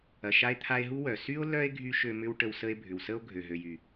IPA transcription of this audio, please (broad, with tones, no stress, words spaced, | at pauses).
ɐ˨ʃa˦e̯ t̪ʰa˦e̯ɦu˥ wœ˩sy˥o̯ lœ˥e̯ ɡʱy˥ʃø˦mʏ˥wʈə˦w sə˦e̯bʱʏ˨wsə˥o̯ ɡʱø˩ɦø˨jy˩